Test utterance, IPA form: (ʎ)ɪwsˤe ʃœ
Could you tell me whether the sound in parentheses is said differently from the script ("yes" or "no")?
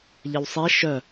no